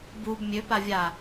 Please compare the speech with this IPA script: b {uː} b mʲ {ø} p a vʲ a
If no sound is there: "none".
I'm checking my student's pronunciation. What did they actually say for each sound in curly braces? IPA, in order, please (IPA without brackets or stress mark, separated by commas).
u, ø